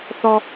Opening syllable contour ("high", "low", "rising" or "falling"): high